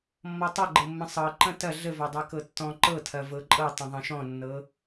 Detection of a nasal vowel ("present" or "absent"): present